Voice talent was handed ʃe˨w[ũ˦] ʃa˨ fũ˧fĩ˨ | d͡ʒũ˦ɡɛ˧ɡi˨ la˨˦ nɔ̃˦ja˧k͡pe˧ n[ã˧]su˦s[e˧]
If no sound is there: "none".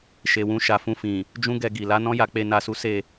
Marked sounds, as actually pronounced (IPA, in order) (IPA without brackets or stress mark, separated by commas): ũ˧, a˧, e˦˨